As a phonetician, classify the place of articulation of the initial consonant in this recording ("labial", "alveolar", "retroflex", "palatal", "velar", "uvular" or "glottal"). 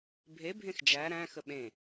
labial